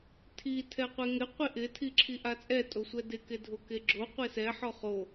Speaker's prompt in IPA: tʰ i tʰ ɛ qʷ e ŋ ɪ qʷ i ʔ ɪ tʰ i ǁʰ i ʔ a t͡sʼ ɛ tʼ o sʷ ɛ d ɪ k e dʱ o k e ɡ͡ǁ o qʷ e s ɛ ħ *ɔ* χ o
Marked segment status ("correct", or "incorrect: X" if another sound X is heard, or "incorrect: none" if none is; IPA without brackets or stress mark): correct